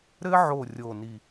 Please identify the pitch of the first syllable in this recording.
high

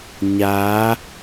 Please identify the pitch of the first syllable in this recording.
rising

